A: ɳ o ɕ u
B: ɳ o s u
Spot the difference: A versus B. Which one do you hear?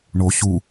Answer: A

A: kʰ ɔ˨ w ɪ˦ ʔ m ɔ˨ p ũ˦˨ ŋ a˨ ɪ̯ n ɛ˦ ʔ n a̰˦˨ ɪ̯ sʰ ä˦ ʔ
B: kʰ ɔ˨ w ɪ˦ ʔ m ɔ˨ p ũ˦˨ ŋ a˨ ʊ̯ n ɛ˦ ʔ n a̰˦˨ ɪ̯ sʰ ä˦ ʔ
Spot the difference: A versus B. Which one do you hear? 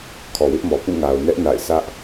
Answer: B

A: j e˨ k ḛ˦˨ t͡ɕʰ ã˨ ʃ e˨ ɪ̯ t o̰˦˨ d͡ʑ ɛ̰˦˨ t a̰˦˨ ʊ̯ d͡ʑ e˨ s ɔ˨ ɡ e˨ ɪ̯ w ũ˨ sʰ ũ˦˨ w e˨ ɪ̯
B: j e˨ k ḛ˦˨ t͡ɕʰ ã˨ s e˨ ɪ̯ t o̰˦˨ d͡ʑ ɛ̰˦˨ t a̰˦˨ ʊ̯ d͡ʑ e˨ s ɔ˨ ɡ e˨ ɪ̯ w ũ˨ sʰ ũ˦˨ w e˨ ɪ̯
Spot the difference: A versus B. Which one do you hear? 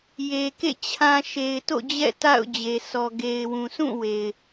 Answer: A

